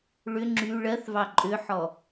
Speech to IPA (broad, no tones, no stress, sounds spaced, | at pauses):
ɭ ʏ ŋ͡ǁ y ɭ ɜ θ v ɑ ǃʼ ʏ ħ ɔ